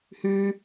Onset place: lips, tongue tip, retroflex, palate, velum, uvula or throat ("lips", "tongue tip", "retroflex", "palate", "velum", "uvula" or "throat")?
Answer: throat